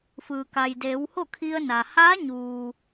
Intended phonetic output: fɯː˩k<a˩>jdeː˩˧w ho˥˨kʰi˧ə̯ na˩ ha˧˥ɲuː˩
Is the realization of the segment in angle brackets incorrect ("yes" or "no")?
no